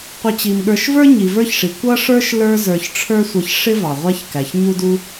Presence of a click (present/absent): absent